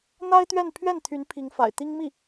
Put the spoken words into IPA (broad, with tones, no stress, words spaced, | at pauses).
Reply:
n̪a˥ɪ̯t̪ɥɛ˥˧n pʰɥɛ˥˩nt̪ʰy˧˥n pʰi˧˥ŋfa̰˨˩ɪ̯t̪i˥ŋmi˥˩